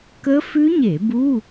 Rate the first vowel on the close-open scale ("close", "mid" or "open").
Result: mid